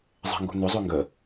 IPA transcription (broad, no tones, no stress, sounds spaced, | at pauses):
zˤ ɛ̤ ŋ ɡ ṳ n ʏ zˤ ø ŋ ɡ ə